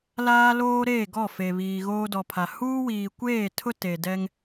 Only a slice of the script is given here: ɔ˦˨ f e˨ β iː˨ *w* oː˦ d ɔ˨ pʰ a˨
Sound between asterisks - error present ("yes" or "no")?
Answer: yes